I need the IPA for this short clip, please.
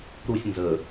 ɾ u sʲ n z ə

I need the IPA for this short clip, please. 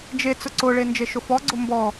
d͡ʒ e t͡s ʊ ǀ ʊ ɭ e n d͡ʒ e ʃ ʊ f ɔ ɡ͡ǀ ʊ m b ɔ

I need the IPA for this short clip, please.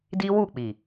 d i˦ w u˦˨ k͡p i˨

